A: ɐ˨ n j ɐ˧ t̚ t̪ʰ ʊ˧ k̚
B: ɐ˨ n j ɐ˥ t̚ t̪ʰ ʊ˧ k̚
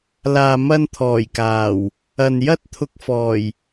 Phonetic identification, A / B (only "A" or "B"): B